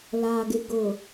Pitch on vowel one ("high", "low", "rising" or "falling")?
low